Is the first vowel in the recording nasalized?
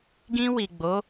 yes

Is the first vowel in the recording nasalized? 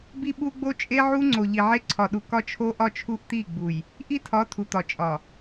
no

